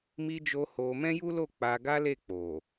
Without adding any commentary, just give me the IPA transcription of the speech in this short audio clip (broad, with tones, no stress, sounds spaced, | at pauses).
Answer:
m i˧ d͡ʒ o˧ h o˧ m ɛ̃˦ j u˦ l o˦˨ k͡p a˧ ɡ a˦ l e˦˨ k͡p o˨